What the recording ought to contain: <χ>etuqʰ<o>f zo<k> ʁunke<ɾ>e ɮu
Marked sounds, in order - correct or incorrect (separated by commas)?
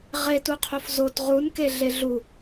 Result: incorrect, correct, incorrect, incorrect